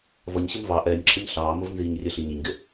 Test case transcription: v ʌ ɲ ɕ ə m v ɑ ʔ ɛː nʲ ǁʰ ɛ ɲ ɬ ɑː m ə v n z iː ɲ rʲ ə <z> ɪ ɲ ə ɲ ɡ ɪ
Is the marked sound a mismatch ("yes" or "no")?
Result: yes